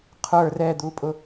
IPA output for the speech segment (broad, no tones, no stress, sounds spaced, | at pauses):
qʰ ə˞ r ɛ d̪ u pʼ ʊ